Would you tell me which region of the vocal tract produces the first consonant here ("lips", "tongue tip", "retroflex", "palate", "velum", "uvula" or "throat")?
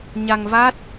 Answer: palate